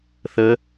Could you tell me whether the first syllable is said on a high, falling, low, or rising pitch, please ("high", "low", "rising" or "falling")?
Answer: rising